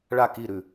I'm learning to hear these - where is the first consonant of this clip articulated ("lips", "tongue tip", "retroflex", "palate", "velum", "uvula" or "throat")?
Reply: retroflex